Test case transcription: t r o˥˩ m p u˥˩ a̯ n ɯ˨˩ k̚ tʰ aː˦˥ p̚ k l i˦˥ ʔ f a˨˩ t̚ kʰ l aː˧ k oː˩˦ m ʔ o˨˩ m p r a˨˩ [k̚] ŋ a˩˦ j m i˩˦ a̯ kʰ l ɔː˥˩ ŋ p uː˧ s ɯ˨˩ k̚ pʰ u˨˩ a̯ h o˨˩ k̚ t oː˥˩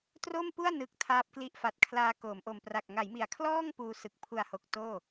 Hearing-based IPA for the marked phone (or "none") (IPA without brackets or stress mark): k̚